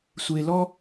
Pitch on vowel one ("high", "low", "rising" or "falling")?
low